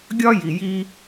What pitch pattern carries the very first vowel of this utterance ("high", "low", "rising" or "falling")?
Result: high